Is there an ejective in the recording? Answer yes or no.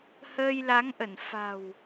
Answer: no